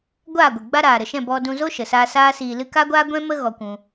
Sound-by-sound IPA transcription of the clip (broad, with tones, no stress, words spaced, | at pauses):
ɡʷaː˦˨ɡʷɨ˨ɡ͡ba˦ ɾaː˨ɾə˨ʃɛ̃˦˨ bɔ˧dũ˧ zo˦ʃə˨saː˧ saː˦siː˧lɨ˦ ka˦ɡʷaː˦ɡʷɛ̃˦mə˦ ɣɔ˧kʷũ˧